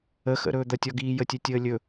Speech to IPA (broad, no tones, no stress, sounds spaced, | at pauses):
ə x ə̰ ɾ ɵː d̪ ɐ tʲ ɔ ɡ iː j ə tʲ ɘ tʲ əː lʲ ɵ